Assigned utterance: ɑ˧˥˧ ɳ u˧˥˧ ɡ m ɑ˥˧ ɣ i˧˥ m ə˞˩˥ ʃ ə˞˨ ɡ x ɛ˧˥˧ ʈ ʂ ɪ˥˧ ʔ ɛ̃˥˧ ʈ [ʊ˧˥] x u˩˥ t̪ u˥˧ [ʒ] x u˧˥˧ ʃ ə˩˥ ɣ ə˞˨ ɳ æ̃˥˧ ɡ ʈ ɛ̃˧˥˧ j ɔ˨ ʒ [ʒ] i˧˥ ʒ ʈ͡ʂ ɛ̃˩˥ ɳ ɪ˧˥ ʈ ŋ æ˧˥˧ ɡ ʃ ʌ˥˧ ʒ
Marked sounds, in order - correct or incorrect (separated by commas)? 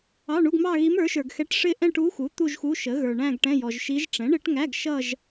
incorrect, correct, incorrect